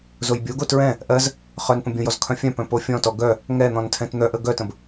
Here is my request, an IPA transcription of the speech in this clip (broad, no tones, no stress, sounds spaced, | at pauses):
z o j bʲ o ɡ o t ɹ ɛ̃ | ʔ ɜ z | χ œ n p ə̃ bʲ õ j ɔ z kʰ œ̃ fʲ œ̃ p œ̃ p o fʲ ɔ̃ t ɔ ɡ œ | ŋ ɛ n̪ ɔ̃ n tʰ ɛ̃ t n̪ œ ʔ ə ɡ œ t ə̃ b